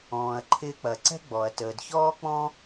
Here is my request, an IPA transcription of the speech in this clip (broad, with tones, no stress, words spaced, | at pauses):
ɔ̃ː˩ɐ̯ ǃʰɪː˧k͡pɐ˩ǀɛ̤˥ ɡ͡bɔ˩ɐ̯ təː˩dçɔː˥k͡pɔ̃˥